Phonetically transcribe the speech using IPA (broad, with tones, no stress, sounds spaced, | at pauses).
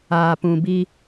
aː˨ p ũ˨ b i˦